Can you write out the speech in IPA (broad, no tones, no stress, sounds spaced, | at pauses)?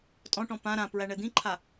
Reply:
tʼ ɔ̃ ʈ ɔ̃ p ã ɾ ã p ɹ æ ɳ ɛ d̪ ĩ ǃʰ a